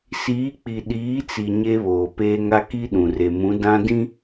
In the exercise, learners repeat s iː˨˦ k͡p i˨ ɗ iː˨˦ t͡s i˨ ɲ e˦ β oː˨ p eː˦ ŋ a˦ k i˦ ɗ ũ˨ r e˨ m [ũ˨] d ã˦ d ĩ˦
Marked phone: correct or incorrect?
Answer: incorrect